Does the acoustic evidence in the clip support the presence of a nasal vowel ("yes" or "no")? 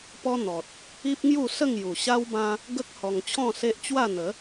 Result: yes